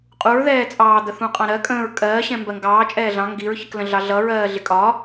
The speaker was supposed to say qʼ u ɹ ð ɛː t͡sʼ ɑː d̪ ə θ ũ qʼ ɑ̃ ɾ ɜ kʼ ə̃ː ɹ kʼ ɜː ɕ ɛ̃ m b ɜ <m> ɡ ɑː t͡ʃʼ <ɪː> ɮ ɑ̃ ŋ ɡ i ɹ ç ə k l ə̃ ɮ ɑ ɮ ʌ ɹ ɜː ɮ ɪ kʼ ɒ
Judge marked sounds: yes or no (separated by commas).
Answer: no, no